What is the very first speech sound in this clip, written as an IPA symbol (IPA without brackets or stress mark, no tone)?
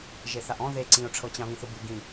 ʒ